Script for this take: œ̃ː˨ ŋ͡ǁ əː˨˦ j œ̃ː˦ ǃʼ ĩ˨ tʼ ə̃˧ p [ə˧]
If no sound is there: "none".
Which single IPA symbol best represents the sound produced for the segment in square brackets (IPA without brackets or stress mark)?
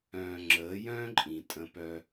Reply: œ˧